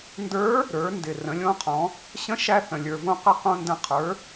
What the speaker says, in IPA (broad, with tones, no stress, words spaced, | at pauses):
ndə˞˧˥ | ɾə˞˩˧ndɪ˩ rə̃˩˧lʲõ˧˥qʰɔ̃˩˧ | ɕə̃˧˥ʃæ˧ θə̃˩lʲə˞˩võ˧ qə˧˥qõ˧ndə̃˧ qʰə˞˩˧